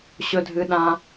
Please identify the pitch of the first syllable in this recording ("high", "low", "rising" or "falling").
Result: high